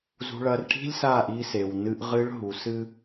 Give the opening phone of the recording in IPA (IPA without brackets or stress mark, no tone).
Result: z